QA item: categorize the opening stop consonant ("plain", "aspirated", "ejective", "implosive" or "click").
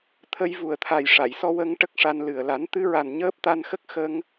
aspirated